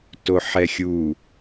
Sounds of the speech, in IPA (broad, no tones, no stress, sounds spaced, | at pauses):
t o ħ ɛ xʲ u